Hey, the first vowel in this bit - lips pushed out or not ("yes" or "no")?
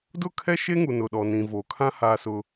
yes